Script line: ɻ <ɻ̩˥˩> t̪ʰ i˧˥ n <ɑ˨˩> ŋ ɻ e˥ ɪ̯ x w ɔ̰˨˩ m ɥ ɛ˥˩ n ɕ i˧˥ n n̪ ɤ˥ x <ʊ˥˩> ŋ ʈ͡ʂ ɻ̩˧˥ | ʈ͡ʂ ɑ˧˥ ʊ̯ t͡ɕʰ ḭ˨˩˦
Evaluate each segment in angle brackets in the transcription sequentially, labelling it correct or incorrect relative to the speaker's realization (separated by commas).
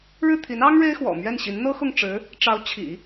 correct, incorrect, correct